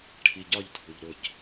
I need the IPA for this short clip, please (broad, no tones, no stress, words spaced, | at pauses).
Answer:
ʈʰiɟɒʎdʱuʎ ɾʊc